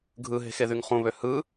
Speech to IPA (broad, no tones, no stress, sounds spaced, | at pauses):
ɡʱ ɯ ɦ e̤ x e ð y ŋ χ ũ β ø h ɯ